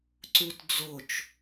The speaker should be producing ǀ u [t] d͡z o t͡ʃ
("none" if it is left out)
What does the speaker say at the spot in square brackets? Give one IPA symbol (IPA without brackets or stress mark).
t